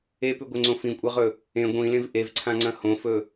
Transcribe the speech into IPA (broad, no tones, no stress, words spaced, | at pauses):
epʉɡʷeŋ͡ǀõ fĩkʷʼaʁɵ | ẽ ɡʷĩlẽv ʔevǀʰãŋ͡ǀɐ̃ hõfɵ